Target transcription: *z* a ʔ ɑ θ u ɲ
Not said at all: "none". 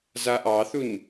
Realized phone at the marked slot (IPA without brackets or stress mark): z